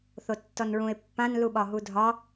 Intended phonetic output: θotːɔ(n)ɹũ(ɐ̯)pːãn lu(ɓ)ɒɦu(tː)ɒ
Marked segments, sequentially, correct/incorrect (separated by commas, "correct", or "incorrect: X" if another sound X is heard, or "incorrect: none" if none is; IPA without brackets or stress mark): correct, incorrect: e̯, correct, incorrect: dʱ